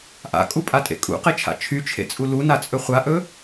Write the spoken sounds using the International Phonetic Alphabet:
ʔa̰kʼupʼatʼḛ kʼṵqet͡ʃʰa̰ t͡ʃʰyt͡ʃʰḛt͡sʼu lunat͡sʼɵ χʷaʔɵ

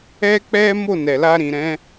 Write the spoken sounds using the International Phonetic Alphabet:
ɛ˦k͡pɛ˦ mo˦˨nɛ˨la˧ ɾĩ˨ɾɛ̃˨˦

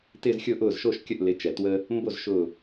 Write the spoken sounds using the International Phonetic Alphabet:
tɪː˥˧zxʲʊː˥˧ʔ ʊː˥˩z ʃo˥˧ʃkʲə˥˩ʔ lɪ˨˥ t͡ʃɛ˩twə˧ | mbo˥˩zʃʊː˧˩

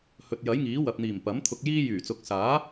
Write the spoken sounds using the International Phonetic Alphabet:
hɵ˨t̚ jɐ˨˥jŋiː˨˥wɐ˨p̚n̪iː˨˩m pɐ˨˥m t̪ʰʊ˧k̚jiː˥ jyː˨˩t͡sʊ˨˥k̚saː˨˥

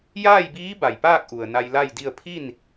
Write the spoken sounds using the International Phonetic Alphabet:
jaː˥˨jbiː˧˥ ba˩jpaː˥˨k̚ ʔu˩ə̯na˧jla˥˨jdi˥˨ə̯ pʰi˥˨n

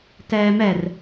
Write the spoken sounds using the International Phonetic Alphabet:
tɛːmɛr

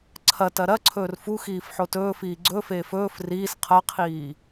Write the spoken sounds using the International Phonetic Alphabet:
ǀʰɐ tɐɾɐǀʰɵːr fuxiːf ħotɵːfiː ɡ͡ǀɵfeːf ɵːf riːs qʰɐqʰiː

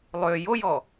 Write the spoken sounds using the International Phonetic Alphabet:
lˠø jojɔ

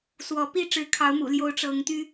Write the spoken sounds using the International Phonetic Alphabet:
swɔ˨˦ pi˥˨ʈ͡ʂɻ̩˨˦kʰɑ˨˦ʊ̯ mṵ˨˩ljo˨˦ʊ̯ ʈ͡ʂɤ˨˦ŋt̪y˦

